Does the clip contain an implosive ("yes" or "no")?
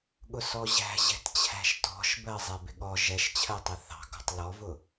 yes